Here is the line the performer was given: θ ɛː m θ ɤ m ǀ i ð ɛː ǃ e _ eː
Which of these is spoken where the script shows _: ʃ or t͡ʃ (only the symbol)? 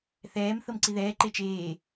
t͡ʃ